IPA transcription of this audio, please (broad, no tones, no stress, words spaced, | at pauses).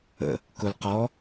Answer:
ə̰ | kʊl qɔ